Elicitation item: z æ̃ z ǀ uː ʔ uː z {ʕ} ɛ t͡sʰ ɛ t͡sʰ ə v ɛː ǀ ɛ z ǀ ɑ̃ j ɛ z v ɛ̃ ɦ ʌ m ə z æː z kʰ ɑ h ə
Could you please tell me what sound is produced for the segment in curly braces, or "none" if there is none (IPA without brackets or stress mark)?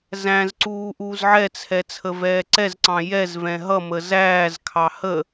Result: ʕ